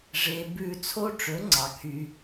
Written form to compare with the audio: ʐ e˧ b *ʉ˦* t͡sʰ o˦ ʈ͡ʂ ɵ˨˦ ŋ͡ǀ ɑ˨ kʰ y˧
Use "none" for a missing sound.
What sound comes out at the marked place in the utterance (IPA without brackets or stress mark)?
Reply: ʉ˦˨